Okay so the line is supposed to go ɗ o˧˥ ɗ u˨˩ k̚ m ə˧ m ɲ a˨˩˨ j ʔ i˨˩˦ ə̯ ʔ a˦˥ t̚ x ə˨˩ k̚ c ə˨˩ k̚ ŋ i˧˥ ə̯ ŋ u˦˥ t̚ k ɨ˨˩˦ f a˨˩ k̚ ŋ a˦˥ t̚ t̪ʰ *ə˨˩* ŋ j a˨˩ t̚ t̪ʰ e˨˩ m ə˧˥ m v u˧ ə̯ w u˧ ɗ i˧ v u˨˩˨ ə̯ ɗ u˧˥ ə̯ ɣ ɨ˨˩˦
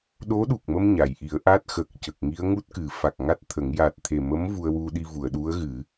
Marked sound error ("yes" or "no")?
yes